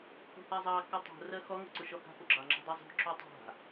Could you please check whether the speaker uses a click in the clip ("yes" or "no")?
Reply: yes